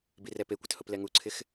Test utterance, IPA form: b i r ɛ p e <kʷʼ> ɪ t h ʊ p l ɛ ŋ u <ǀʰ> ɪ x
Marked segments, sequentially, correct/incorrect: incorrect: kʷ, correct

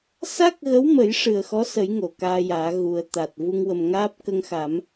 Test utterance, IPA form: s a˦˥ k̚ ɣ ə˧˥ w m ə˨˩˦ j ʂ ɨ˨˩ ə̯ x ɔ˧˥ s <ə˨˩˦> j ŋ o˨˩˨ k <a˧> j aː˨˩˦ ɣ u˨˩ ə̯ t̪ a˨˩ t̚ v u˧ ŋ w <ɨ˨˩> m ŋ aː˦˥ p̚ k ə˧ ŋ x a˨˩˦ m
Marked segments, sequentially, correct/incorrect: correct, incorrect: aː˧, incorrect: ə˨˩

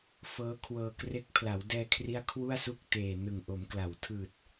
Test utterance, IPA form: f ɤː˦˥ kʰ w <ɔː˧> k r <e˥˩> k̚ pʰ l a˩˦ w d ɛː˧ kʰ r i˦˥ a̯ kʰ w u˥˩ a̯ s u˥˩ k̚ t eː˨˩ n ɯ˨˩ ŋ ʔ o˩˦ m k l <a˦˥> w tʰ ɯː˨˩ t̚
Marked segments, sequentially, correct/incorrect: incorrect: ɤː˧, incorrect: e˦˥, incorrect: a˩˦

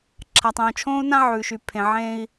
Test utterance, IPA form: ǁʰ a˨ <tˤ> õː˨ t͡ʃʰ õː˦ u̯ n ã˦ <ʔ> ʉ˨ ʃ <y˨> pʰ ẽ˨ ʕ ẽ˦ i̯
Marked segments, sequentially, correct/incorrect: correct, incorrect: ʕ, correct

